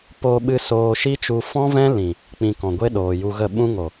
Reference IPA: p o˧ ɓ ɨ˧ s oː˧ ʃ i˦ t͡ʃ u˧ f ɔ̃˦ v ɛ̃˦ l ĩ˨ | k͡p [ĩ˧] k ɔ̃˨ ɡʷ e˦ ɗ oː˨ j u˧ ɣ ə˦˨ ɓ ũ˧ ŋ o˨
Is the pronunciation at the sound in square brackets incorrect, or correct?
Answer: incorrect